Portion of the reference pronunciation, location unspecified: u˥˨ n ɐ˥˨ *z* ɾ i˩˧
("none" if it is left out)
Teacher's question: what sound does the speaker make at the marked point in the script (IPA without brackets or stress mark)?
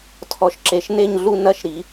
ʃ